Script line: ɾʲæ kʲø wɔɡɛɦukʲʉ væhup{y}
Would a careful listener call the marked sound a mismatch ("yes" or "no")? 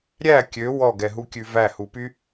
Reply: no